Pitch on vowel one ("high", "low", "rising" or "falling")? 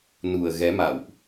low